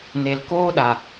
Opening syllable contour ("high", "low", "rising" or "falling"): low